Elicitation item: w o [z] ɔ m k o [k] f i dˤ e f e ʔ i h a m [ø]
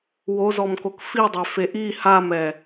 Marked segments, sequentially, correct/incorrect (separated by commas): correct, correct, incorrect